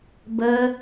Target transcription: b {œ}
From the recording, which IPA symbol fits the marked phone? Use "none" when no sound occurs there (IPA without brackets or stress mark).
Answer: ə